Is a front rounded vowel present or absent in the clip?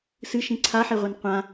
absent